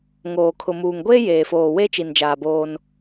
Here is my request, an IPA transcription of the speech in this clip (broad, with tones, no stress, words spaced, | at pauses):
ŋoː˨kʰʊ˨muː˨ŋ ɡʷeː˦jeː˨foː˨ we˦t͡ʃi˨nd͡ʒaː˨ boː˦n